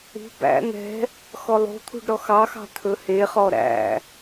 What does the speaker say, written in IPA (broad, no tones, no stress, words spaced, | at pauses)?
ṳ bæ̰ n̪ɛ̤ | xɔlˠo̤t̪ʰṳɖ ɾɔxɑxɑ̤ t̪ʰɵheχɔ ɾæ̰